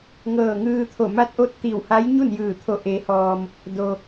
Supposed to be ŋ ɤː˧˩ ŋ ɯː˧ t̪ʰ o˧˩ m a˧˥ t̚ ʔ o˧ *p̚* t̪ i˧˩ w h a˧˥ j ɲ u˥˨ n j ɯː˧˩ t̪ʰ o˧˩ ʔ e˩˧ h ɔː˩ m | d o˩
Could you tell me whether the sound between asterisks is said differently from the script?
yes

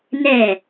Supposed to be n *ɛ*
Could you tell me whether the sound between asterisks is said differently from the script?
no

